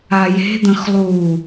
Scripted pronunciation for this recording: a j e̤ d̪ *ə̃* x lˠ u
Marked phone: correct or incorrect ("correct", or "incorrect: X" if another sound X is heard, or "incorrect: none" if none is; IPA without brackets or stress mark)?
correct